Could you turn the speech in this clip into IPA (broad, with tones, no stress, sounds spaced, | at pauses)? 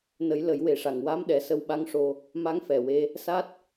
n ə˨˩˦ j l ə˨˩˦ j w e˨˩ ʂ a˨˩ ŋ w a˧˥ m ɗ ɛ˨˩ s ə˧ w ɓ a˧˥ ŋ ʂ o˧ | m a˧˥ ŋ f ɛ˨˩ w e˧ | s a˦˥ t̚